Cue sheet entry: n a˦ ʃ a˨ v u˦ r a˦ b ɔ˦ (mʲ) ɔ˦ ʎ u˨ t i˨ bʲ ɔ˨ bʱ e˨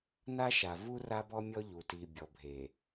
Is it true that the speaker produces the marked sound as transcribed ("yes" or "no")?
yes